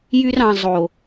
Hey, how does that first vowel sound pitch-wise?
high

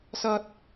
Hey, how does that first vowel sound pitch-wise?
high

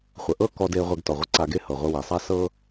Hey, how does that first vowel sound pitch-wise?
low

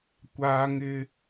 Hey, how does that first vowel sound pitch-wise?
high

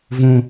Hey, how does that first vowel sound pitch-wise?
low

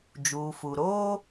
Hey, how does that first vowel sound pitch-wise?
low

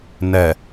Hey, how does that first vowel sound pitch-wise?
low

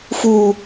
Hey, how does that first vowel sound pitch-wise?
low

